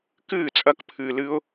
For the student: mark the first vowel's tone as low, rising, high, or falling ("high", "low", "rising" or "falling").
falling